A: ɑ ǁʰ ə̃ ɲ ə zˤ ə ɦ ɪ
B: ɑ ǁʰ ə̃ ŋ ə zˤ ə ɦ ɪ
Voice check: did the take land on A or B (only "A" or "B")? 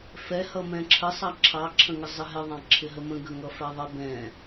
B